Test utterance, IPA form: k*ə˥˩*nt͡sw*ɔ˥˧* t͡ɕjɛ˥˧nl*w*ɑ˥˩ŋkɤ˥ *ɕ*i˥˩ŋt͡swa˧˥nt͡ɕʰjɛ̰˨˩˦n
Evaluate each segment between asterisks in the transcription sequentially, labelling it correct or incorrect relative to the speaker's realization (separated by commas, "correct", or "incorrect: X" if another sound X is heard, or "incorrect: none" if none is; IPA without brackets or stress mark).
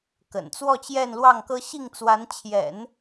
incorrect: ə̰˨˩, correct, correct, correct